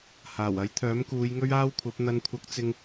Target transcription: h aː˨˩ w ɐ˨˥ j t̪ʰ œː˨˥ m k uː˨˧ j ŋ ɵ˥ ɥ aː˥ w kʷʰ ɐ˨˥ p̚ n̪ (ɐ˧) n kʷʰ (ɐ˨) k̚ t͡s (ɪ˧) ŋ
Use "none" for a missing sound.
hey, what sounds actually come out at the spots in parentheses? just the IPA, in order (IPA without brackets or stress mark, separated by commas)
ɐ˧, ɐ˧, ɪ˧